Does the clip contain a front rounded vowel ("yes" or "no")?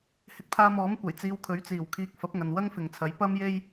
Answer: no